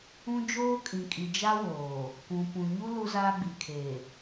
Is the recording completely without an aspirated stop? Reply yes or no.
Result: no